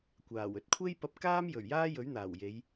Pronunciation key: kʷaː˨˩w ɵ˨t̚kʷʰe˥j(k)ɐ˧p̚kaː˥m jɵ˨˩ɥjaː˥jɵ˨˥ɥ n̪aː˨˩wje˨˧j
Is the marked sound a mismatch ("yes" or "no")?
yes